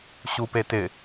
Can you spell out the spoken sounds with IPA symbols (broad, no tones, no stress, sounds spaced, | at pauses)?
ɕ u p e t ɪ